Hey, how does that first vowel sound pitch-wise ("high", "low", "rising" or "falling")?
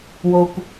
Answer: low